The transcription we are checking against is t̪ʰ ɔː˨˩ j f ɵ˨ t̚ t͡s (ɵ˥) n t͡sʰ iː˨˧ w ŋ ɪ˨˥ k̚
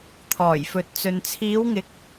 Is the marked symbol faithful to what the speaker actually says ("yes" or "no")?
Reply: no